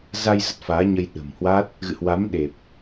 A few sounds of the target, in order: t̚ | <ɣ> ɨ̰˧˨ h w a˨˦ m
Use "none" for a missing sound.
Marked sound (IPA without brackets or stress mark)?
ɣ